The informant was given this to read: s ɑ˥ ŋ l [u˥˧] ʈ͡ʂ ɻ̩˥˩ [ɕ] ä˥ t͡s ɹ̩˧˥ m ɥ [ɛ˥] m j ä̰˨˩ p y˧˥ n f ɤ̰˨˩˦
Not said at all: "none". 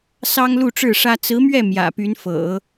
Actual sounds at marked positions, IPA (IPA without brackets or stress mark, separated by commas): u˥˧, ʂ, ɛ˥˩